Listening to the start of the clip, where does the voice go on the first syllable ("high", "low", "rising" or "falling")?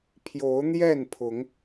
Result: rising